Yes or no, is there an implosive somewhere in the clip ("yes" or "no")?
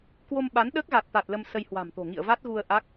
yes